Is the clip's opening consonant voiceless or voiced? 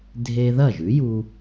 voiced